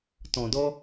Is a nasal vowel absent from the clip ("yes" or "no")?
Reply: no